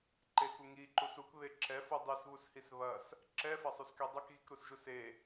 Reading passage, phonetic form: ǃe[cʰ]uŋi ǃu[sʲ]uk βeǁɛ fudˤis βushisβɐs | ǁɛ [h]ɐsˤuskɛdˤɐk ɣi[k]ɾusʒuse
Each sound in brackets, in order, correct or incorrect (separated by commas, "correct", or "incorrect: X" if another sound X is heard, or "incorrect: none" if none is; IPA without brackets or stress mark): incorrect: k, incorrect: s, incorrect: f, correct